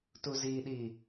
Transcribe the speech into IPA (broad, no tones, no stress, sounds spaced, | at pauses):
t u z i ɗ i